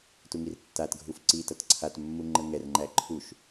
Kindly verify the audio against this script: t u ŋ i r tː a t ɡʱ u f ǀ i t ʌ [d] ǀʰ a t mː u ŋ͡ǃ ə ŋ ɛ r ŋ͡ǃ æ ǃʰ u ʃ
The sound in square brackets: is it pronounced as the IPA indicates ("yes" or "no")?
no